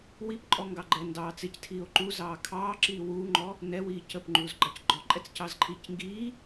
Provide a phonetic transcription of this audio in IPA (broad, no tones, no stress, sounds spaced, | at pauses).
w i p ǃʼ ɔ ŋ ɡ ɑ ɡ͡ǃ ɛ n d ɑː t͡s ɪ c tʰ iː o̯ ǃ u z ɑː kʰ ɑː ǁ iː w uː ŋ͡ǃ ɔ | n ɛ w iː c ə p ŋ͡ǃ uː z ɡ͡ǃ ɑ c ɡ͡ǃ ɔ ǃʼ ɛ t͡s c ɑ z ǃʰ iː c ŋ ɡ iː